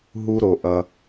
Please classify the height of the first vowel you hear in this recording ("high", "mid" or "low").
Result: high